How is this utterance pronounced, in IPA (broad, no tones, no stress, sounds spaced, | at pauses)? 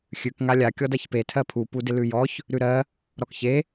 xʲ ʉ k ŋ a lʲ a kʲ ɔ d a ç p e tʰ ɜ pʰ u p u d ɪ l ʉ j ɔ ç | ɾ ʉ ɾ ɜ | ɾ ɔ k ç e